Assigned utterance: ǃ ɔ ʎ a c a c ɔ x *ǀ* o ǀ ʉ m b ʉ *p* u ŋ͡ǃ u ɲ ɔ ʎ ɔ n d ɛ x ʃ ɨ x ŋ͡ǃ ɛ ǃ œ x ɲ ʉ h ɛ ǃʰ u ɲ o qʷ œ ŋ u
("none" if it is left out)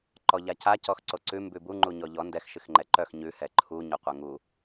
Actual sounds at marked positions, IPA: ǀ, b

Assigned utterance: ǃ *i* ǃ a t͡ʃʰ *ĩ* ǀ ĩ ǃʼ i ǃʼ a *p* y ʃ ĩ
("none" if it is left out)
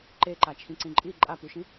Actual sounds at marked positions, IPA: e, ĩ, p

